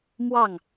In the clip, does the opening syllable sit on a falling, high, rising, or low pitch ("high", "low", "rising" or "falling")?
falling